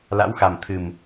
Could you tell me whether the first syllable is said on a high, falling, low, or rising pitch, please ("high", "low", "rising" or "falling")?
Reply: rising